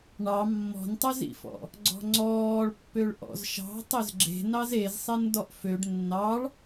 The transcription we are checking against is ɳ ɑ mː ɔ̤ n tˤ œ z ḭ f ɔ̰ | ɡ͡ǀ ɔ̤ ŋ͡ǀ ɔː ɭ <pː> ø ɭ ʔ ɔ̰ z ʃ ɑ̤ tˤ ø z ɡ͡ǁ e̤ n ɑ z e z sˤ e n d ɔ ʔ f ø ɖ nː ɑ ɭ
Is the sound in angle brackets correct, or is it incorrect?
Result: correct